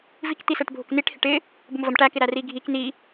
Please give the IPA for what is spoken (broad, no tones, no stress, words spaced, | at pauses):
vikt̪isɛʈ bʱʊkniʈhɪʈ ɪ | bʊmvəm ʈækɪɾæ riɡʱik ni